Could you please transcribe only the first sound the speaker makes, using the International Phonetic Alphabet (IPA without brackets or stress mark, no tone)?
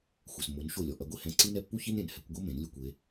xʷ